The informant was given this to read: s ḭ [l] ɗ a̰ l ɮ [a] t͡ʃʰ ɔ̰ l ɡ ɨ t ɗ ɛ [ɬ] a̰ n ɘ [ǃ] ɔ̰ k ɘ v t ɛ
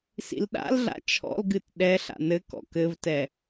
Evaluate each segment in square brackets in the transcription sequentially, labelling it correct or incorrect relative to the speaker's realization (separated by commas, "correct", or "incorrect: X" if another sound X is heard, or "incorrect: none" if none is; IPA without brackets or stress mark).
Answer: correct, incorrect: a̰, correct, incorrect: k